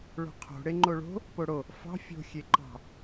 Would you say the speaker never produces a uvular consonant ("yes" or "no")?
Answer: no